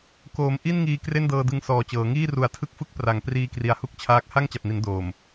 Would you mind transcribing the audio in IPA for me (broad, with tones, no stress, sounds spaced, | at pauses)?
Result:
k oː˩˦ m ʔ i˥˩ n ŋ iː˧ k r e˥˩ n d ɤː˧ d ɯ˧ ŋ s ɔː˨˩ t͡ɕ ɤː˩˦ ŋ iː˥˩ r u˩˦ a̯ tʰ ɯ˦˥ k̚ f ɯ˦˥ k̚ p r a˩˦ ŋ p r iː˧ k r i˨˩ a̯ h u˥˩ k̚ t͡ɕʰ aː˦˥ k̚ h a˥˩ ŋ t͡ɕ a˨˩ p̚ n i˩˦ n d oː˨˩ m